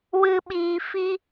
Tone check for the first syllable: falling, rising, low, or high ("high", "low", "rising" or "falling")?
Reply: low